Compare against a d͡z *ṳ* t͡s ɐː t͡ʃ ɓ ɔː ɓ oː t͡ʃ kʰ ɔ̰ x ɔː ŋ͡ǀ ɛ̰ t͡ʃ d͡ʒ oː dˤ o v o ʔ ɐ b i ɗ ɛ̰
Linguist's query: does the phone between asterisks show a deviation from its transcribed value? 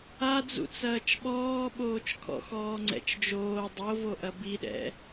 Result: yes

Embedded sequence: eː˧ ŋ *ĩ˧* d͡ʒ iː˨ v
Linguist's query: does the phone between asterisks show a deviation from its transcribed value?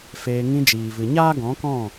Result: no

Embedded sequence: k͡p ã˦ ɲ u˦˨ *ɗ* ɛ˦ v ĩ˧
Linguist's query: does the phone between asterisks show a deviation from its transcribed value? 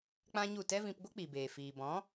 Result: yes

